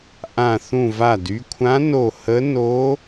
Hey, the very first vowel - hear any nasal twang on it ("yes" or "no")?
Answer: yes